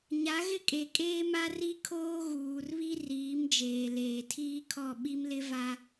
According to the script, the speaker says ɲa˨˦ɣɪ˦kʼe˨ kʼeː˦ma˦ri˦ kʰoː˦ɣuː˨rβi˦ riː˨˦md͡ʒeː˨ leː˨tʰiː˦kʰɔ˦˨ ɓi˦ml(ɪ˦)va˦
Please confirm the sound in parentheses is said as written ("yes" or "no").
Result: yes